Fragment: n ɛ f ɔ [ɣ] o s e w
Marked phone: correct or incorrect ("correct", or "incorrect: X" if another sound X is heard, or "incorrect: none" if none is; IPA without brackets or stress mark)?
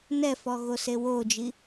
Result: correct